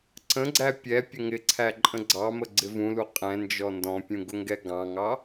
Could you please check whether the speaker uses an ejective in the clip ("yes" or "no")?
yes